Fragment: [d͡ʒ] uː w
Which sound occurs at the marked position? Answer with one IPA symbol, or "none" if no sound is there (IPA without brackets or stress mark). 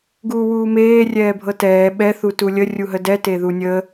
ɡ